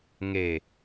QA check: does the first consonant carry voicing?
yes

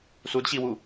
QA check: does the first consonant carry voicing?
no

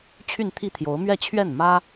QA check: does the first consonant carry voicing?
no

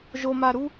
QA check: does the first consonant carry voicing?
yes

